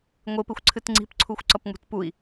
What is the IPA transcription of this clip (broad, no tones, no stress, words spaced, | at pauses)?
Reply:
ŋʷɪpɪxʷǀʰɨt ŋ͡ǀi̤pǀʰuxʷǀʌpŋ͡mṳt pui̯